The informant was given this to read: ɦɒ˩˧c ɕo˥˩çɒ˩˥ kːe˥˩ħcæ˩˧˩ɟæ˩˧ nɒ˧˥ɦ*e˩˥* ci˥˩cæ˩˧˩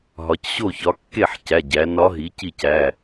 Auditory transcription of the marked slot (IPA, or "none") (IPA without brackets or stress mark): i˩˥